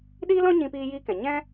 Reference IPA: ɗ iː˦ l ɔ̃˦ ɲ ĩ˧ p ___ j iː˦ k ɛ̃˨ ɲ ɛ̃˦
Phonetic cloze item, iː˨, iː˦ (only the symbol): iː˦